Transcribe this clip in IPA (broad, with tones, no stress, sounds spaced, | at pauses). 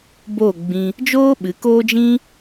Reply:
b o˦˨ ɡ͡b ĩ˧ | d͡ʒ oː˦ ɓ ɨ˨˦ k oː˦ d͡ʒ ĩ˦